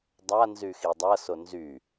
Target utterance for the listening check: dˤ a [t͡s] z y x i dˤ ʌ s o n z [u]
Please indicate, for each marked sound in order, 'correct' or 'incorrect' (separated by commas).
incorrect, incorrect